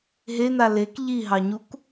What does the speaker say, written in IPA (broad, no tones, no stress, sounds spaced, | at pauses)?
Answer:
ɦ e n̪ a l e k ʎ i ɦ ɑ ɲ u k